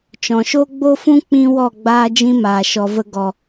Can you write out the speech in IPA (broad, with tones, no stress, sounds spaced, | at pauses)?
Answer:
t͡ʃ ɔ̃˨ ʃ o˦ ɡ͡b o˦ f ũ˦ k͡p ĩ˦ w ɔ˦˨ ɡ͡b aː˦ d͡ʒ ĩ˦ m aː˨ ʃ ɔ˨ v ə˧ ɡ ɔ˨